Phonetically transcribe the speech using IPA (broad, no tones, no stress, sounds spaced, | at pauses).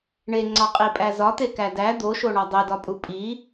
ɳ e ŋ͡ǀ ɒ qʼ i pʼ æ z ɒ t̪ e k æ d æ d̪ o ʃ o ɳ ɒ dˤ e d ɒ pʼ u pʼ i